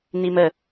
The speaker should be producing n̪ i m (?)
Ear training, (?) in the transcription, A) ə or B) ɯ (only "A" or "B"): A